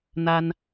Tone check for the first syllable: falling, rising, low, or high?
high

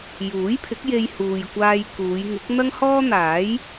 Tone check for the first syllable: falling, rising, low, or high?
rising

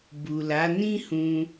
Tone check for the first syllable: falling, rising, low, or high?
low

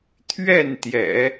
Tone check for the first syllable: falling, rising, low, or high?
falling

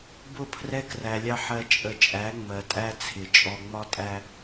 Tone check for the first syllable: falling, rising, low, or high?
falling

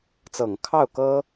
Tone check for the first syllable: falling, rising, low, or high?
low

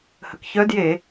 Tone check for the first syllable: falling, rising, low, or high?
low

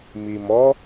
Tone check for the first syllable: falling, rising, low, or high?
low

